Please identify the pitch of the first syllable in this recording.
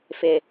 low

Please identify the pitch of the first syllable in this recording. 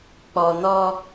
low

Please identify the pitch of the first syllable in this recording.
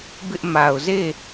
high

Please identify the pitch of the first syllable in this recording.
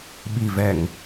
low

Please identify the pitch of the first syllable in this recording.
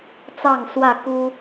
falling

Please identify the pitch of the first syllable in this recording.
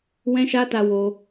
high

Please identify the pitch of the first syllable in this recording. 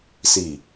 low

